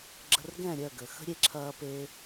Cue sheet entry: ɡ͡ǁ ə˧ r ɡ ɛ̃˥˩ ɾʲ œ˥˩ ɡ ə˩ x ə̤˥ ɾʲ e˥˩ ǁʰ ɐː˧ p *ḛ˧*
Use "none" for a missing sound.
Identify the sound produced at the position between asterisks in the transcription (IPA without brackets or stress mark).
e˧